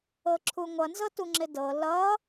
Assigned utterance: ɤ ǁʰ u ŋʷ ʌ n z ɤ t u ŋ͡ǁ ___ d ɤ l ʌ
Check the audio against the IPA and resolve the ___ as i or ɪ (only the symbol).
ɪ